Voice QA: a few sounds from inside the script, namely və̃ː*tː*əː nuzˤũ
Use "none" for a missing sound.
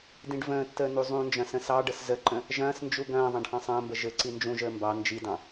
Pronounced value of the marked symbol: tː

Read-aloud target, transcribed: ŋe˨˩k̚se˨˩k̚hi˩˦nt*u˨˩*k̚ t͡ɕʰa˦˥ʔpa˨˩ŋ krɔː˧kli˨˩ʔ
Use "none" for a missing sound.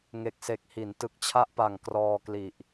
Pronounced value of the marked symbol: ɯ˨˩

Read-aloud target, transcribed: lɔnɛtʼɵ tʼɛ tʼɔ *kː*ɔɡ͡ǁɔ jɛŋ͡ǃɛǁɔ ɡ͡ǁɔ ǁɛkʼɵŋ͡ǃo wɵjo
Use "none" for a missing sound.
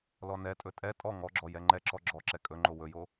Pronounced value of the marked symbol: ŋ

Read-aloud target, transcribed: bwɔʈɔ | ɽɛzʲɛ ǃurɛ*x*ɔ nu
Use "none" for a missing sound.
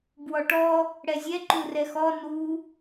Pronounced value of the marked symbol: x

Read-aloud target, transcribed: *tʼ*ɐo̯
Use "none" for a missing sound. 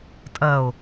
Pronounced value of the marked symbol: tʼ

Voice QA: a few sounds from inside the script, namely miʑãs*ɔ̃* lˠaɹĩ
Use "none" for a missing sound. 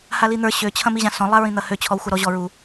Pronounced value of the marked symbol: ɔ̃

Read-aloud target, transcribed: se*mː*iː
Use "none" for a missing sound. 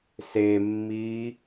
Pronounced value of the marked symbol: mː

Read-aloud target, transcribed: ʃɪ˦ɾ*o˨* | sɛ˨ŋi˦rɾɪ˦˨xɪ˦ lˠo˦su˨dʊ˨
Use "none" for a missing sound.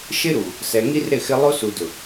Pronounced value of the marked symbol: u˨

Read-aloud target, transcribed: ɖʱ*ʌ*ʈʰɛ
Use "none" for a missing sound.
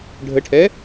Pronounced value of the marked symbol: ə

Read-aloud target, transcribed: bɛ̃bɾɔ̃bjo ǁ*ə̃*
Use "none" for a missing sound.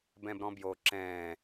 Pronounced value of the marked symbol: ɛ̃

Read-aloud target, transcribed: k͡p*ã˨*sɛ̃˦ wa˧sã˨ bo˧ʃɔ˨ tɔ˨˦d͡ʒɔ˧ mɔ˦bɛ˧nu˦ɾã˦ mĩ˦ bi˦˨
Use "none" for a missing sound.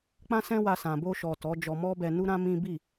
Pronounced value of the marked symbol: ã˦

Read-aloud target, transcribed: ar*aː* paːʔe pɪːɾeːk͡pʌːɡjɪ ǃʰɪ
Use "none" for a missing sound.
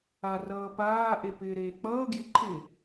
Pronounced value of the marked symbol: ʌː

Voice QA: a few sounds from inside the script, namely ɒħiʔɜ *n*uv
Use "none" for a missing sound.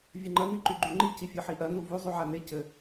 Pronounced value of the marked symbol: n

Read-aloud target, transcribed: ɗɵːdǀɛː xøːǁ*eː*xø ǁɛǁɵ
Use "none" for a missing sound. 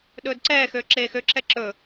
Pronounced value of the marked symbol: eː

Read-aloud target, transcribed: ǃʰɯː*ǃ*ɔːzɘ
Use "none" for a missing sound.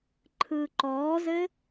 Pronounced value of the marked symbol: ǃ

